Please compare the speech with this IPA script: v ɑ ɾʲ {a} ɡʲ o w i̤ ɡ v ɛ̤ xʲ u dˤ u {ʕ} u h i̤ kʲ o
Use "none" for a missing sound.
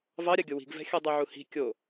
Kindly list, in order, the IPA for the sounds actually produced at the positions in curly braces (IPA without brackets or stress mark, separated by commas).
a, ʕ